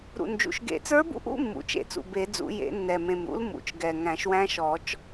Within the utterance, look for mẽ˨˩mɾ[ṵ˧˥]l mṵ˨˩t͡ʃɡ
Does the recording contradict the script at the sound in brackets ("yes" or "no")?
no